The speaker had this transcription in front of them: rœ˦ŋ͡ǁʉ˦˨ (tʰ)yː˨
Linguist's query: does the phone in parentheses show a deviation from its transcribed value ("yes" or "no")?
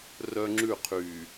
yes